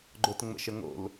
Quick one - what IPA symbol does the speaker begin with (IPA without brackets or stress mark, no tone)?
ɡ͡ǃ